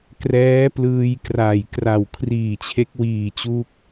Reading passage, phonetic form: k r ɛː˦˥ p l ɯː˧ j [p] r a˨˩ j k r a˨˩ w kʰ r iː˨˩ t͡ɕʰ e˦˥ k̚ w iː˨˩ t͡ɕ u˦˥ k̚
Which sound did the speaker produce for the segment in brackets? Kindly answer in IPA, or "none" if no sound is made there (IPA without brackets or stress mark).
k